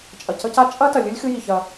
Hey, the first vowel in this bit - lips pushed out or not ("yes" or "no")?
no